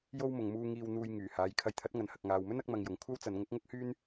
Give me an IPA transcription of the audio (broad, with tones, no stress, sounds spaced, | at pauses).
j o˧ w m ʊ˨ ŋ m uː˧ ŋ iː˧ w n̪ uː˧ j ŋ yː˨˩ h aː˨˧ j kʰ ɐ˨˧ j t̪ʰ ɐ˨˥ t̚ ŋ ɐ˨ n h ɐ˨ k̚ ŋ aː˨ w m ɵ˥ n ɐ˥ k̚ m ɐ˧ ŋ j ʊ˨ ŋ kʷʰ ɐ˥ w t͡s ɐ˨˧ n ŋ ʊ˨˥ k̚ ŋ ʊ˥ k̚ h yː˥ n